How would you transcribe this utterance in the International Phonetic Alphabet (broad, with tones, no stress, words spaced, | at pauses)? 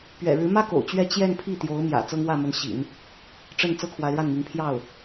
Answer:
pɥɛ̰˨˩ɻɻ̩˧˥mä˥ ko̰˨˩ʊ̯t͡ɕɥɛ˥ t͡ɕjɛ˥˧n pʰi˥˩t̪jo˧˥ʊ̯mjä̰˨˩ t͡sɤ˥ŋwä˥˩mə˧˥nɕḭ˨˩˦n | ʈ͡ʂə˥˩n t͡sɤ˥kʰwa˧˥ɪ̯ɻa˥˩nmi˧˥ŋ pʰjɑ˥˩ʊ̯